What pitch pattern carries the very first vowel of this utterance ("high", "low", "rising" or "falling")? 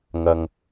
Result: low